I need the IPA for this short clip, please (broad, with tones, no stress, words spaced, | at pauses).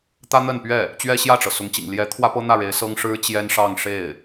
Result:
t̪ä˥n̪ə˥˧npɥɛ˥˩ | t͡ɕɥɛ˥ɕjä˥˩ʈ͡ʂɤ˩ sʊ˧˥ŋt͡ɕḭ˨˩ŋ ljɛ˧˥ t̪ʰwä˥pɤ˥n̪ä˥˩ɻe˧˥ɪ̯ sɤ˥ŋ ʂɻ̩˥t͡ɕjɛ˥nʂɑ˥˧ŋ ʂe˥˩ɪ̯